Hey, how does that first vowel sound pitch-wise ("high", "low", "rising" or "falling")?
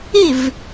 falling